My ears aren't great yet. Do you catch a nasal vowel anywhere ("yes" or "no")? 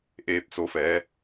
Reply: no